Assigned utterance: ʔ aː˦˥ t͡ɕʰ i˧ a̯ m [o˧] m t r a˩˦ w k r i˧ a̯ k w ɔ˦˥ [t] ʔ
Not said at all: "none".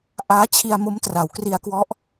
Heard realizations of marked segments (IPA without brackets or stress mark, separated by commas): o˦˥, none